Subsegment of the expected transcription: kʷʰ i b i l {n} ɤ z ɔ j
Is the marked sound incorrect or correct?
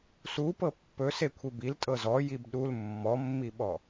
incorrect